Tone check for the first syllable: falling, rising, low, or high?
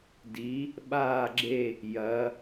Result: rising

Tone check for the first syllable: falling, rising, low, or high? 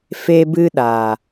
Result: high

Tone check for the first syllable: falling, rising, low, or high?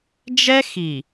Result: high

